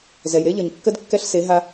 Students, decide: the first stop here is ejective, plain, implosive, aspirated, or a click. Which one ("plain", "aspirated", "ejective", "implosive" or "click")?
plain